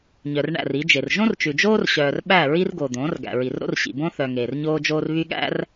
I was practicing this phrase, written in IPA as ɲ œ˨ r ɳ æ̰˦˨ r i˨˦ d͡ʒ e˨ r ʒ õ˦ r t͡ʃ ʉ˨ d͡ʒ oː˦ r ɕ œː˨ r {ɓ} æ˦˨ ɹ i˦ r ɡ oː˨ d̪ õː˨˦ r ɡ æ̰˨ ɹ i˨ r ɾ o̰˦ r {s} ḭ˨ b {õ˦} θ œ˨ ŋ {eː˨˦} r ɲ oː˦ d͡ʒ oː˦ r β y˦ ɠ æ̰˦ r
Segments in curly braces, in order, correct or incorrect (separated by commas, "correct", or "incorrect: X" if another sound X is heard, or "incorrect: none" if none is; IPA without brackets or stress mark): correct, incorrect: ɕ, correct, incorrect: eː˨